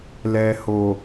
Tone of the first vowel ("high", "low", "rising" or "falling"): low